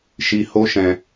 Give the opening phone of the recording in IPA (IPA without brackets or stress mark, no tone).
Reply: ʃ